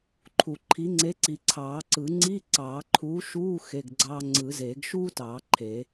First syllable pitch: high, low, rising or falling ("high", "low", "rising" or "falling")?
low